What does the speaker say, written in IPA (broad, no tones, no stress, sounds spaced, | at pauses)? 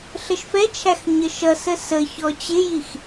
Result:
ɬ ə ʃ f ɛ t͡ʃʰ æ x ɲ ə ʃ ʌ s ə s ə ç ɔ t͡ɕ ɪ j i x